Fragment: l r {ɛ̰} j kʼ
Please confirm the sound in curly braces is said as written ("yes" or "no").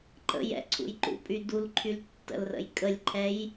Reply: no